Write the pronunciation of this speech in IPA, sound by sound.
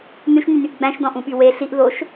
n ʉ ʃ n y n y ʔ ɡ͡b æ̃ ʃ d ɔ̃ ʔ ũ ɓ y w e ɬ i ʔ ð o ʃ

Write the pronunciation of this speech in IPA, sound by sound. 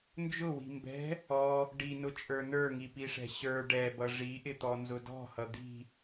n d͡ʒ ʊ w i̤ m b ɛ̤ | ɔ | ɖ i n ʊ t͡ʃʼ ə˞ n ə˞ ŋ i p i ʂ ɛ̤ ɕ ə˞ ɖ ɛ b ʌ ʐ i ʔ ɪ t̪ ɔ n z ʊ d ɔ̤ h ʌ d̪ i̤

